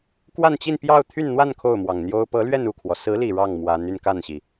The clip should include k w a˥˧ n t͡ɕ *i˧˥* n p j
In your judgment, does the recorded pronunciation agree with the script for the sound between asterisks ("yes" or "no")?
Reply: no